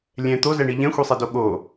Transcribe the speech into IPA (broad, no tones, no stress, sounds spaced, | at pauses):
lʲ ɛ̃ t̪ o z ɛ ɳ i ʎ ɛ̃ xʷ i sˤ ɛ d o ɠ o